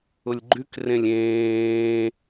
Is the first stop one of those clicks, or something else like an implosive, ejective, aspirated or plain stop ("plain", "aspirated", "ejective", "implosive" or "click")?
click